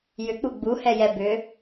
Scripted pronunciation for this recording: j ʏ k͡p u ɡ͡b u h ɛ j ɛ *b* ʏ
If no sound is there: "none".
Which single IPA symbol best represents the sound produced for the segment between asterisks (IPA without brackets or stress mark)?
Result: b